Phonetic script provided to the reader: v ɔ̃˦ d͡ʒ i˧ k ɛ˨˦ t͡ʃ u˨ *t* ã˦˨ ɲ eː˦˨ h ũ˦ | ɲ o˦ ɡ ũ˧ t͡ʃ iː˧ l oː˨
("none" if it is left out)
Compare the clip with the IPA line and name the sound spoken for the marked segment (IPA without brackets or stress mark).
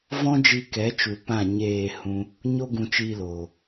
p